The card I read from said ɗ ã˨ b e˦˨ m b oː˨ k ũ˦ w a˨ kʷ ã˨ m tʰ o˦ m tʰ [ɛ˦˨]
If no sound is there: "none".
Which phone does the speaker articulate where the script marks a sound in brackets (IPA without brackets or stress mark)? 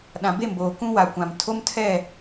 ɛ˦˨